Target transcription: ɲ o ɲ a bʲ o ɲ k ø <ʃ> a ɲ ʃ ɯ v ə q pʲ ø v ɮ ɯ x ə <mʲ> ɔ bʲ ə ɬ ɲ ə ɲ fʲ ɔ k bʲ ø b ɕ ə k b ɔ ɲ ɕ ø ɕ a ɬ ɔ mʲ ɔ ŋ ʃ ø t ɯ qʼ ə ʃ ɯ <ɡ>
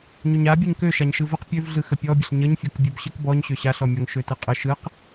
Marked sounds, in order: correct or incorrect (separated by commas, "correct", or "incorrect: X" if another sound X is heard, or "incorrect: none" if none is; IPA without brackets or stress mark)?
correct, incorrect: pʲ, incorrect: q